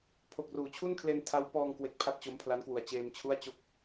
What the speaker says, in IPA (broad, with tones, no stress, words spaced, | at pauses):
pʰo˨˩k̚ruː˩˦t͡ɕʰu˥˩nkʰle˧n tʰa˦˥w pɔː˧ŋkwe˨˩k̚ pʰa˥˩t̚t͡ɕo˦˥m pʰla˦˥nkwu˨˩a̯ t͡ɕeː˧mt͡ɕʰu˥˩a̯t͡ɕo˥˩k̚